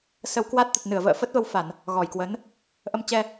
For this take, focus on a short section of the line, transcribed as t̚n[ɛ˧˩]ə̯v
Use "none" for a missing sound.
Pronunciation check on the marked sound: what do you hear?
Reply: ɨ˧˩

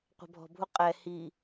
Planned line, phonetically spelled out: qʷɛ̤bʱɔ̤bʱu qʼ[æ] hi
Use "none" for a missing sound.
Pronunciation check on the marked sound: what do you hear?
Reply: ɛ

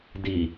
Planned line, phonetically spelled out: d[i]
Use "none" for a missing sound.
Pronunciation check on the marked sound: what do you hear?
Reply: i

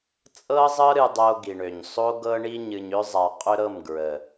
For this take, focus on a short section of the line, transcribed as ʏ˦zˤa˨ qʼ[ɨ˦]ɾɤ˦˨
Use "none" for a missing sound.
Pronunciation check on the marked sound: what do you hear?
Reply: ʏ˦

